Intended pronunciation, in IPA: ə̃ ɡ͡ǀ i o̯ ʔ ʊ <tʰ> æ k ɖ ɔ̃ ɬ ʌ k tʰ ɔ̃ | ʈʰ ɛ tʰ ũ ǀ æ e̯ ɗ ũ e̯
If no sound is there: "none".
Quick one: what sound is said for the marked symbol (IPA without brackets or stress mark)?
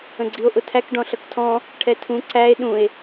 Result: tʰ